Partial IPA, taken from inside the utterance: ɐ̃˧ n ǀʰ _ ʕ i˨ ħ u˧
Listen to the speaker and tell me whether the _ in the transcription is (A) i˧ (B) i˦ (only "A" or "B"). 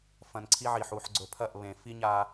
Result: B